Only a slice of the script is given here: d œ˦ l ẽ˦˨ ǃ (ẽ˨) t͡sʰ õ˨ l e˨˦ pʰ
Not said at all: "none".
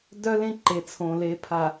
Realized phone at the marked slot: e˨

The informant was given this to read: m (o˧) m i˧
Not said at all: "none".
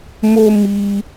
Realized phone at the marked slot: o˧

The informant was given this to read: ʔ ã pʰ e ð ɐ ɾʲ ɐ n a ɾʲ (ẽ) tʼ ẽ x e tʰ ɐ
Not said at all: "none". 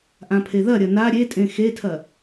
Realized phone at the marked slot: e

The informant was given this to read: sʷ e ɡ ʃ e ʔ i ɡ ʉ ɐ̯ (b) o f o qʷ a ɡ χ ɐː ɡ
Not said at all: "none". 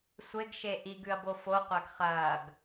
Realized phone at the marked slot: b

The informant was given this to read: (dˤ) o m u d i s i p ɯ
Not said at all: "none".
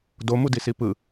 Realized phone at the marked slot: d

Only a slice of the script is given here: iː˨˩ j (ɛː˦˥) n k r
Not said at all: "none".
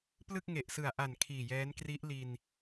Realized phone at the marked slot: ɛː˦˥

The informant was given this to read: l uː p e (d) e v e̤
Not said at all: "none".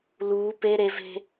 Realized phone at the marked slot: ɾ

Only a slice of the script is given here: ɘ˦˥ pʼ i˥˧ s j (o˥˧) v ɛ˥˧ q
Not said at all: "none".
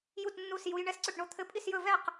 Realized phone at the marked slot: ɵ˥˧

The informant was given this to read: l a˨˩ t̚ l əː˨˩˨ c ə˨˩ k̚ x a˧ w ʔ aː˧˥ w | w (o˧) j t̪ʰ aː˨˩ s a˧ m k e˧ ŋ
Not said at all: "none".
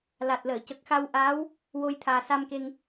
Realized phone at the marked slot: o˧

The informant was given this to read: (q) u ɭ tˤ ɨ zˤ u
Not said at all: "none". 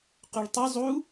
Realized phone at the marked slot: q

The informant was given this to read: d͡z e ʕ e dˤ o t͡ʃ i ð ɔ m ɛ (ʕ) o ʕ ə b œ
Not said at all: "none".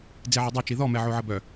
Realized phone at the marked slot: ʕ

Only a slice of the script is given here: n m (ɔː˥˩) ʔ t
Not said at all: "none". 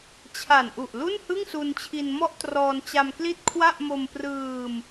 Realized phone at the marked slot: ɔ˥˩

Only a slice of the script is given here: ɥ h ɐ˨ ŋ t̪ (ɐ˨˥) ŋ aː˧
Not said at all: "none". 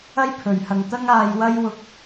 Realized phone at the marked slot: ɐ˥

